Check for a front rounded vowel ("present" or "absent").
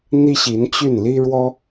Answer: present